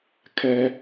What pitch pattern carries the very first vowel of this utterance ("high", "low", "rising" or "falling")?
high